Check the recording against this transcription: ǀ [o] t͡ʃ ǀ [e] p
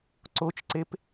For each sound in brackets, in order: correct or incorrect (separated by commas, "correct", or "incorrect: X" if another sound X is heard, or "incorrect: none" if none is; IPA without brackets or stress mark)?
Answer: correct, correct